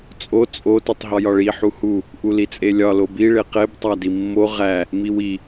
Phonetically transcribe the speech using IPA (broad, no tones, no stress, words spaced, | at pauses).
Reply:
t͡sʼo t͡sʼo titˤɦɒjɒɭi ħuhu | ʔulit͡sʼelʲɒ lobi ɭeqeb tˤædimːo ʁæ | miwi